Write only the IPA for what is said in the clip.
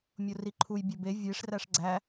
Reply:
mʲ o r i ǃʰ u j bʲ o b e vʲ e ʂ r æ ʂ ɡ͡ǀ æ

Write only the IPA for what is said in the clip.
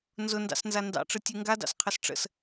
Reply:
n z ʊ n d ɑ̰ s n z a n d ɑ̰ ʈ͡ʂ ɯ tʲ ɯ ŋ ɡ a d ɑ̰ s qʰ ə s ʈ͡ʂ ə̰ s

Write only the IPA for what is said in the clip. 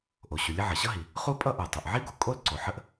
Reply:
ʔ o˩ ɕ u˩ lʲ ə˥ ʕ ʌ˩ ɕ ʌ˥ ɦ i˩ | χ u˥ pʼ ʌ˥ ʔ ə˞˩ tˤ o˩ ʔ ʕ i˥ ɡ u˩ kʼ o˥ l ǀ o˩ ħ ə˥ ʔ

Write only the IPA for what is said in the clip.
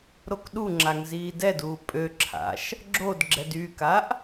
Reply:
ɾ o k ɗ u ŋ͡ǁ a ŋ z iː d ɛ d uː pʼ ø ǁʰ a̰ ʃ | ɡ͡ǁ o d ɡ͡ǁ ɛ d y k a ʔ

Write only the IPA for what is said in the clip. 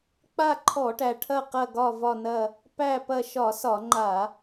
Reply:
k͡p a˦˨ ǃʰ ɔ˧˩˧ ʈ æ˩ ʈʰ ɐ˦˨ q ɐ˦˨ ɡ ɒ˦˨ v ɒ˦˨ n ɐ˦˨ | p æ˦˨ p ɐ˦˨ ʃ ɒ˧˩˧ s ɒ˧˩˧ ŋ͡ǃ a˧˩˧

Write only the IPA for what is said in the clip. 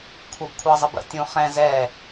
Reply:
kʷʰ ə˞ b kʷʰ ɑ zˤ ə b ə̰ tʲ ũ χ ɛ̃ z ɛ

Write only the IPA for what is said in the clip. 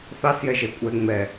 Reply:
θ ɑ s j ɛ ʒ ɛ kʷʼ ɛ ŋ͡m ɛ

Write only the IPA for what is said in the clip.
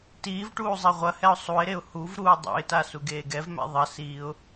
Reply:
t iː v ʈ uː zˤ e ʁʷ ɐ h ɛ ʊ̯ sˤ u ɪ̯ ɾ e ʊ̯ h u v ɾ uː dˤ o̰ ɪ̯ t a s u ɡ eː ɡ ɛ v m ɛ̰ ðˤ ɐ s iː ʊ̯

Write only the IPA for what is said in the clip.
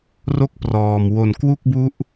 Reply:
r o˥˩ k̚ p r ɔː˨˩ m w o˨˩ n k w u˥˩ k̚ b u˦˥ ʔ

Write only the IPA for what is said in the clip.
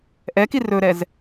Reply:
ʔ ɛ k i r ɵ ɾ ɛ z

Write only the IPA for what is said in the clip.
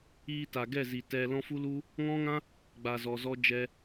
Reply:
iː˧ t a˨ ɡ ɛ˦˨ z i˨ t ɛ˧ l ɔ̃˦ f u˦ l u˦ | ŋ ɔ̃˦ ŋ ã˦ | ɡ͡b a˨ z ɔ˨ z ɔ˧ d͡ʒ ɛ˧

